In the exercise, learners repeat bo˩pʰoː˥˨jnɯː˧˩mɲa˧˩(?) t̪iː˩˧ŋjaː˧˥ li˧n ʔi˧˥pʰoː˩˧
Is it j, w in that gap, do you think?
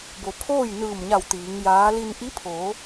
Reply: w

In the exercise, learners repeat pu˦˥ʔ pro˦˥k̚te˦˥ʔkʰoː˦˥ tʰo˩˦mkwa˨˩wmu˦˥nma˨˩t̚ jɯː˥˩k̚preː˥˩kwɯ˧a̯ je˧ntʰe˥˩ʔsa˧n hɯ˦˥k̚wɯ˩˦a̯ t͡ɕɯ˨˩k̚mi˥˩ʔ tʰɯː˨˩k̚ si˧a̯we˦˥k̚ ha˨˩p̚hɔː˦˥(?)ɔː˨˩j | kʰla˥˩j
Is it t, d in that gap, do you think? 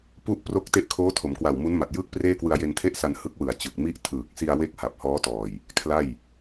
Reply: t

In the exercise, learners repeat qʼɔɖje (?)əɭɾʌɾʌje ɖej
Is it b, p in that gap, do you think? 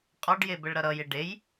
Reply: b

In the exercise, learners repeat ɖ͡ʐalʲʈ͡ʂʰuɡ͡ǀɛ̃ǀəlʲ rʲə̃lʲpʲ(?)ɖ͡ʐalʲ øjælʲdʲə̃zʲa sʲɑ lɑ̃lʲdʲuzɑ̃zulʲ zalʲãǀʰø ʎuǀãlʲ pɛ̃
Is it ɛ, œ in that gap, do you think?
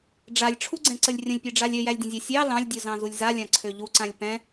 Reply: ɛ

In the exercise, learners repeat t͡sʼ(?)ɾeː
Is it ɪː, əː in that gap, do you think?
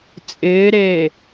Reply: ɪː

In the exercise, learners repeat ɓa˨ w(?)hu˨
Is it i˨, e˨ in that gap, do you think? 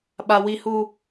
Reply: i˨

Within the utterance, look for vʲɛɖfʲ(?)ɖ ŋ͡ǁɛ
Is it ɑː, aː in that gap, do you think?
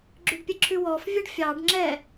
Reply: ɑː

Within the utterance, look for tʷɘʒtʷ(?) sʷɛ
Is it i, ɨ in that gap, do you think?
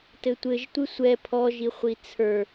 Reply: ɨ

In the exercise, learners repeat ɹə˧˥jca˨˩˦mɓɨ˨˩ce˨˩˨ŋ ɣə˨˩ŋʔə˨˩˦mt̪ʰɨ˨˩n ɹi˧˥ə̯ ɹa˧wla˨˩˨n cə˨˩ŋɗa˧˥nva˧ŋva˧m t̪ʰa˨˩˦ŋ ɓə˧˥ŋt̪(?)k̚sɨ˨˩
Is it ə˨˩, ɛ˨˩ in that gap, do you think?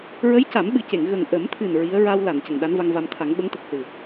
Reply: ə˨˩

